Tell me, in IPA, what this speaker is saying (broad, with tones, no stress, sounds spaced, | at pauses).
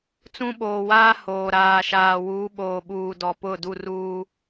t͡s ũ˦ ɓ oː˨ w aː˦ h oː˨ ɾ aː˨ ʃ aː˨ w uː˨˦ ɓ oː˨ ɓ uː˨ d ɔ˨ p ʊ˦˨ d u˦˨ r uː˦